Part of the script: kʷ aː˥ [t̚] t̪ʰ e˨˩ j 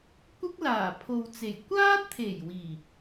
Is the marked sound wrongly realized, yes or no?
no